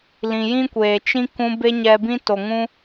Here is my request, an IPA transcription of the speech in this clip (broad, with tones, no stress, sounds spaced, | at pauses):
l ĩ˨ j ĩ˦ kʷ eː˨ t͡ʃ ĩ˦ k ũ˧ b e˦ ɲ ɛ˧ b ĩ˦ t o˨ ŋ ũ˦